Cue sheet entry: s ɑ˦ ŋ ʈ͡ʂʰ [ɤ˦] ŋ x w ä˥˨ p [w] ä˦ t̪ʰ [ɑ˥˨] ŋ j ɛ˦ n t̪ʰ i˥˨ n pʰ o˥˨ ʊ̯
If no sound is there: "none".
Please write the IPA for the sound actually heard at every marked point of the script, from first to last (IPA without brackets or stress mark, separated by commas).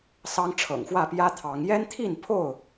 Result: ɤ̰˨˩, j, ɑ˨˦